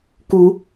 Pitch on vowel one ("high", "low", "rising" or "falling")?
rising